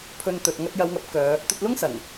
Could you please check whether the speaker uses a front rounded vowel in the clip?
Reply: yes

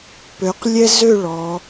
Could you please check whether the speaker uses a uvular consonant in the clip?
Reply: yes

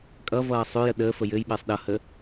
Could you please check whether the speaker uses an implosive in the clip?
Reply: yes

